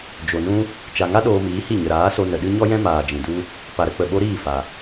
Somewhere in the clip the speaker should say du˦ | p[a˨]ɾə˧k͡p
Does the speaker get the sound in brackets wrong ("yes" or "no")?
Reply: no